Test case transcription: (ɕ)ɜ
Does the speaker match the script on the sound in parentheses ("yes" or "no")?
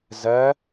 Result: no